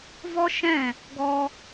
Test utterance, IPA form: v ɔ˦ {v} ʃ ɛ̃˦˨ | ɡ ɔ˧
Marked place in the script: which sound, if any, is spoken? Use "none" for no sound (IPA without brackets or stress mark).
none